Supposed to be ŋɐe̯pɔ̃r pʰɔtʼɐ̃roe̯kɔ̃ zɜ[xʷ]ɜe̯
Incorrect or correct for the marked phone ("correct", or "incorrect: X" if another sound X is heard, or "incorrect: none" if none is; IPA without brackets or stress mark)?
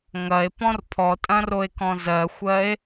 correct